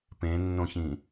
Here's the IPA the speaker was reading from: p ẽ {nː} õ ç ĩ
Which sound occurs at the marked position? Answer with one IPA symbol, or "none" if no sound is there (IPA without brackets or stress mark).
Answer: nː